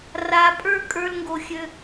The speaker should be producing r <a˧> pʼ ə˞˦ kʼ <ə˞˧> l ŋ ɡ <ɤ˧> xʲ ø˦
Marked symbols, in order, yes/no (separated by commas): yes, no, no